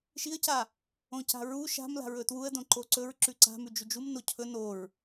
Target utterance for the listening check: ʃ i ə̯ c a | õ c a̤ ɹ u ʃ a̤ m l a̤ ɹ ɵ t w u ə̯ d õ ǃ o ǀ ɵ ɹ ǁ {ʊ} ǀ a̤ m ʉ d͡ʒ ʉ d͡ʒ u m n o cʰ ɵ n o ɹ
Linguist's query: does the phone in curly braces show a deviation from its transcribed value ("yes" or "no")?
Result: yes